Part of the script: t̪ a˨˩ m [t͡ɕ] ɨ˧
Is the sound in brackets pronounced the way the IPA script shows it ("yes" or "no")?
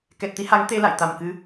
no